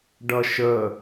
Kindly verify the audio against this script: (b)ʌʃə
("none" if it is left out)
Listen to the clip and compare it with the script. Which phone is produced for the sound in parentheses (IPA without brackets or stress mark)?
ɖ